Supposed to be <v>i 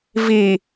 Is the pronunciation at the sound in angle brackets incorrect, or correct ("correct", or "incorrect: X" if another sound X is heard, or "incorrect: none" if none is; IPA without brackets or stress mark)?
correct